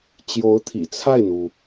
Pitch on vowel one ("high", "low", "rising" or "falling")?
rising